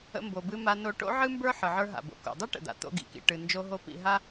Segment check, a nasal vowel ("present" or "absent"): absent